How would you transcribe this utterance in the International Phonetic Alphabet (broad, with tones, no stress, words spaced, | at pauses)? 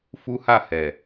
fu˦ha˦˨ hɛ˨